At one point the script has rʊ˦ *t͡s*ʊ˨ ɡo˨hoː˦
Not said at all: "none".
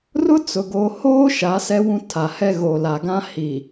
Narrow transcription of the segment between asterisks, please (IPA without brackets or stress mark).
t͡s